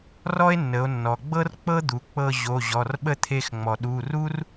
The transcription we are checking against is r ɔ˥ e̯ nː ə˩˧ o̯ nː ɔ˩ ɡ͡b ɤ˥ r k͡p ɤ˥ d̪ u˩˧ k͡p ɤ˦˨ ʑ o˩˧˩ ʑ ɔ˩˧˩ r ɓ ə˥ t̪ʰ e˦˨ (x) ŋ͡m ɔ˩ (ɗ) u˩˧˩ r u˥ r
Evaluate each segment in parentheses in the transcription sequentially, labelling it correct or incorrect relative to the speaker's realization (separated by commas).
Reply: correct, correct